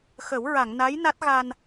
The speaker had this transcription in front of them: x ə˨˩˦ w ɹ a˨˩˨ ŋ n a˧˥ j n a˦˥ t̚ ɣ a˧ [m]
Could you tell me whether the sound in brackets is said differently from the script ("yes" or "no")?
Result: yes